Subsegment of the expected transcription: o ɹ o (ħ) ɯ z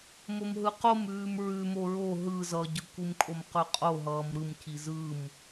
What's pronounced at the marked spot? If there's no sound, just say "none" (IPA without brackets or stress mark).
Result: ɦ